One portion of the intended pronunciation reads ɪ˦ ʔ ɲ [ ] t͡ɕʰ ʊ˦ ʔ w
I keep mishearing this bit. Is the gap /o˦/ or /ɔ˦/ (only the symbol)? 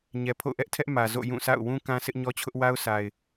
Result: ɔ˦